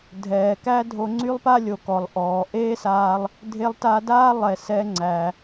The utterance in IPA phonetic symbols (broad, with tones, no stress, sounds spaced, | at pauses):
dʱ ɛː˩ k æ˥ dʱ o˧ ŋ͡ǀ y˥ lˠ p a˥ lʲ o˩ k ɔ˩ lˠ ʔ ɔː˩ ʔ eː˥ s aː˧ lˠ | dʱ e˧ lˠ t a˧ d aː˥ lˠ ɛ˩ s ɛ˧ ŋ͡ǀ æ˩